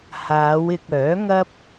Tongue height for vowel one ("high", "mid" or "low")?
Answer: low